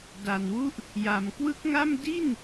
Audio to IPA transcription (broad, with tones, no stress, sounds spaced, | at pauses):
d a˨˩ n w u˦˥ ʔ | j a˨˩ m k w ɯ˦˥ k̚ ŋ a˥˩ m d i˥˩ n